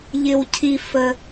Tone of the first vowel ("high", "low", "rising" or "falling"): low